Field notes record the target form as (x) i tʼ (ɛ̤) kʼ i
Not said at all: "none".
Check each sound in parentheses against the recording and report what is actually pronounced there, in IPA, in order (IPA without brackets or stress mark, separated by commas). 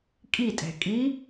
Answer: kʼ, ɛ̤